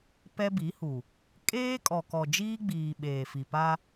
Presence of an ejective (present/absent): present